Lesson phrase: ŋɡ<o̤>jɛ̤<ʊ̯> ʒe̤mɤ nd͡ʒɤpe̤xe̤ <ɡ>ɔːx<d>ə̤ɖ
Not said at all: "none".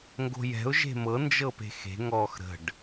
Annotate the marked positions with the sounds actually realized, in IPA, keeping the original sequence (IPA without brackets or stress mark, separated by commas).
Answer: o̤, ʊ̯, ŋ, ɾ